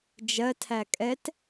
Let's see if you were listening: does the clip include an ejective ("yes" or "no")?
yes